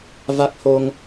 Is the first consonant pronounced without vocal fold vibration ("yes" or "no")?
no